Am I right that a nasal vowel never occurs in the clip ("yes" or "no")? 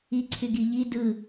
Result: yes